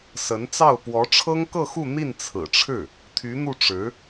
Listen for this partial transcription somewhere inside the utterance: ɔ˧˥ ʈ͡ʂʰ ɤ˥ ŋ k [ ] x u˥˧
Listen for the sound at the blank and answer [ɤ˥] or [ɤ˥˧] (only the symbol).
ɤ˥˧